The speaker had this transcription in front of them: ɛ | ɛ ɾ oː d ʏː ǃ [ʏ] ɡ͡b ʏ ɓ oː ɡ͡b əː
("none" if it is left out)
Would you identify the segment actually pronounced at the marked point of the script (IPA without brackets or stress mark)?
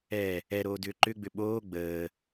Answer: ʏ